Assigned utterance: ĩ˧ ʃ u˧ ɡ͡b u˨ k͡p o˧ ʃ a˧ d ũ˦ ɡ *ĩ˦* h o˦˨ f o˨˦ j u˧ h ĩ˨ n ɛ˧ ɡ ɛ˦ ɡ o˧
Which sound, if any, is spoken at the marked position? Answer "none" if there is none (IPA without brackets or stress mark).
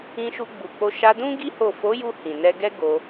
i˦